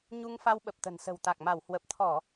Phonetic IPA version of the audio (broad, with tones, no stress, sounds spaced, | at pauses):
ɲ u˧ ŋ f a˧ w ɓ ə˨˩ p̚ t̪ ə̤˨˩ n s ə̤˨˩ w t̪ a˨˩ k̚ m a˧˩ w h w ə˨˩ p̚ t̪ʰ ɔ˧˩˨